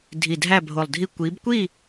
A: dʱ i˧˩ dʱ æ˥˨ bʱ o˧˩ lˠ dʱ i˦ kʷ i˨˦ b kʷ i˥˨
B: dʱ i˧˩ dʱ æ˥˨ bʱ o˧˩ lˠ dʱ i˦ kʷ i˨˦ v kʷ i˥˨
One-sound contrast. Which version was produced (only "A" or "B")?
A